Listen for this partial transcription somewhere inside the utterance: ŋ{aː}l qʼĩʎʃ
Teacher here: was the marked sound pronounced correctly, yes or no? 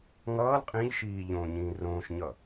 no